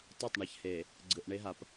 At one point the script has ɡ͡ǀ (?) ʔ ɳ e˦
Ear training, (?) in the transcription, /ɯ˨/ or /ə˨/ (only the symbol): ɯ˨